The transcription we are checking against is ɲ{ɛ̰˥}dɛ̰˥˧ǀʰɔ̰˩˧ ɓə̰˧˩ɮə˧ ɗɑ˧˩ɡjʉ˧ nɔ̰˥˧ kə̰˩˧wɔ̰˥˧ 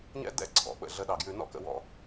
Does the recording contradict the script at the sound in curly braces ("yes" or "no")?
no